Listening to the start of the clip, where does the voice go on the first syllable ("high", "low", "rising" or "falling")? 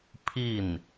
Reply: falling